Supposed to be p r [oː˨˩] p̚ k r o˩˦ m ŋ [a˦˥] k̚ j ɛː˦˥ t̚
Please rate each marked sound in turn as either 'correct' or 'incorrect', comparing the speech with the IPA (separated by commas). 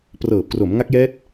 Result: incorrect, correct